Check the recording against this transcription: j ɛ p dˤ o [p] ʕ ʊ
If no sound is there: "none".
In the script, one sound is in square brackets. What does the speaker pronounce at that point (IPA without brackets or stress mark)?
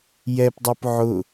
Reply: p